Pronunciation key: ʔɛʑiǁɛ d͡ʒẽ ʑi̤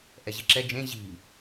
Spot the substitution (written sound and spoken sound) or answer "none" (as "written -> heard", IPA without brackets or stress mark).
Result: none